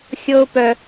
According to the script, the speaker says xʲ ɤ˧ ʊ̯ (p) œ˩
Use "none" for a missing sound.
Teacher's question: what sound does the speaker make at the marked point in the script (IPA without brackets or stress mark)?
p